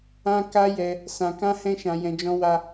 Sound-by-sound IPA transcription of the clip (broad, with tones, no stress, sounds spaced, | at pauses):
ã˦ k a˦ j ɛ˧ | s ã˧ k ã˦ h ɛ̃˦ ʃ ã˧ j ɛ̃˧ d͡ʒ ɔ̃˧ w a˦